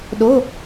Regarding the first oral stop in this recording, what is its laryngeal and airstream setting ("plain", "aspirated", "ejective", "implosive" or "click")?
implosive